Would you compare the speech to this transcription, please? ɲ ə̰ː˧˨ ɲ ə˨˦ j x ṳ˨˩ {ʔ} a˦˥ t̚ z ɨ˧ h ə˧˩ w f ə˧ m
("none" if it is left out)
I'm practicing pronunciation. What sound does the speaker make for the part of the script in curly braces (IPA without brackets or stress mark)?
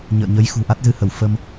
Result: ʔ